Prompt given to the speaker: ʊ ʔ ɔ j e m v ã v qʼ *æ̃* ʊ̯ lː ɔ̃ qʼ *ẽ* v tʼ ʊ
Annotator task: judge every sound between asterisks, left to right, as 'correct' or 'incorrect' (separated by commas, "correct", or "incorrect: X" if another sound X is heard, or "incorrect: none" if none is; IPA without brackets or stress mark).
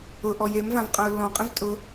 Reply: incorrect: ã, correct